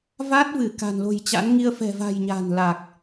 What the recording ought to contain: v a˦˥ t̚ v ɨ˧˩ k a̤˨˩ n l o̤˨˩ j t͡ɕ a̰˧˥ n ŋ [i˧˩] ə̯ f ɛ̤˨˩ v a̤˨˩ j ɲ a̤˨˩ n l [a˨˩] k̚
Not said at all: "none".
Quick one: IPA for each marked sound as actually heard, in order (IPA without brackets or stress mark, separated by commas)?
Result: i˧, a˨˩